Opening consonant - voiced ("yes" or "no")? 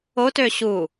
no